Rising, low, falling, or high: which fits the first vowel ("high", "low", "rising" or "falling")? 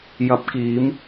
rising